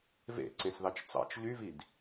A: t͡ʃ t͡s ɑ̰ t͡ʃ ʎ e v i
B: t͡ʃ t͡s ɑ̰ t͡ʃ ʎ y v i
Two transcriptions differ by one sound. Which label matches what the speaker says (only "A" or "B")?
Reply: B